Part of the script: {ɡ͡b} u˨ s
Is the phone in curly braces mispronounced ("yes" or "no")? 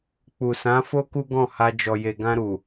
yes